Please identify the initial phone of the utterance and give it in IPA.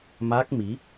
m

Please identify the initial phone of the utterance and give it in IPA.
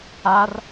a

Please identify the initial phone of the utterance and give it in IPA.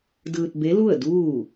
d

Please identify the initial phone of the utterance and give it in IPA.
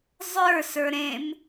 zˤ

